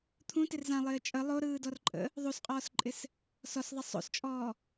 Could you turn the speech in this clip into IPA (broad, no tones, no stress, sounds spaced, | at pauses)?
t̪ʰ ũ t ɪ r z ã lˠ ɪː t͡ʃʼ ə lˠ o ɾ ɯː d ɔ r ǃʼ ə̰ | ðˤ u s qʼ ɔː s ǃʼ ɪ s | s ɔ s ðˤ ɪ sˤ o̰ s t͡ʃʼ ɔː